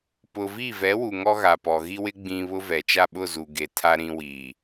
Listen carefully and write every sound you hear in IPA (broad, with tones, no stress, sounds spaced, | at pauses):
p ʊ˨ v i˦˨ v ɛ˨˦ w u˨ ŋ ɔ˦ ɣ a˨ p ɔ˨ ɣ i˦ w ɪ˦ ɡ͡b ĩ˨ β ʊ˦ v ɛ˨ t͡ʃ a˦˨ ɓ ʊ˦˨ z u˨ ɡ e˨ tʰ a˦ ɾ ĩ˦ w i˨